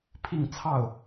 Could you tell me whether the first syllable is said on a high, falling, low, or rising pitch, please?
falling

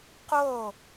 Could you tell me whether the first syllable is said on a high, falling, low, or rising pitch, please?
falling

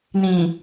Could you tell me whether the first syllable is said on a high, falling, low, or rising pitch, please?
low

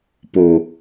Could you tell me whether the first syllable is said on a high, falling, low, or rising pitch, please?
low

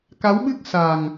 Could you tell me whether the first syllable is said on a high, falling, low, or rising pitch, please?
rising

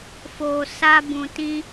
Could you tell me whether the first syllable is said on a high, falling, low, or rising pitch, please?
low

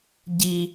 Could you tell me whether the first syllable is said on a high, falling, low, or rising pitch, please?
low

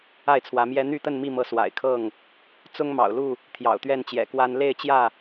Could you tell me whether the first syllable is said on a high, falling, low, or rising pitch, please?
falling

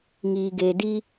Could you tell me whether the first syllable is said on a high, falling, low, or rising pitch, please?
low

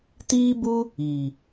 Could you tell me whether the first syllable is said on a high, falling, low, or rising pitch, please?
high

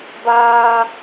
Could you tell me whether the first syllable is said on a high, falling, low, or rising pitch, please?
high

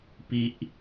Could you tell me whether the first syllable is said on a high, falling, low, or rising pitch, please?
high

